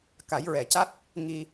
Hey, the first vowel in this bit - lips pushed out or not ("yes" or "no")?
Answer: no